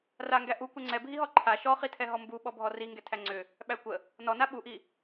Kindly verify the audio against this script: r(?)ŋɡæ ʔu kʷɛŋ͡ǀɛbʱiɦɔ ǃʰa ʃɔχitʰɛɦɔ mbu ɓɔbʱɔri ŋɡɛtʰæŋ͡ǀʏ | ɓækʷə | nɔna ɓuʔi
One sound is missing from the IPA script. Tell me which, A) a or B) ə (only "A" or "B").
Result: A